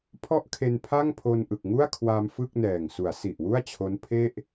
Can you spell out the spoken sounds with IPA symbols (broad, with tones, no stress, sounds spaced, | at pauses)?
pʰ ɔ˥˩ ʔ kʰ e˧ n pʰ a˥˩ ŋ pʰ o˧ n ʔ ɯ˨˩ k̚ ŋ u˥˩ a̯ kʰ w a˧ m f ɯ˥˩ k̚ n ɛː˨˩ ŋ s u˩˦ a̯ s i˨˩ ʔ w u˥˩ a̯ t͡ɕʰ o˦˥ n pʰ e˥˩ ʔ